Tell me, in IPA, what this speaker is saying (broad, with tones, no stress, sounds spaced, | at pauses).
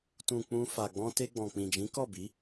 t ũ˨ k͡p ũ˧ f a˨ ɡ͡b ɔ̃˧ t e˧ ɡ͡b ɔ̃˨ k͡p ĩ˨ d͡ʒ ĩ˨˦ k ɔ˦˨ b i˨˦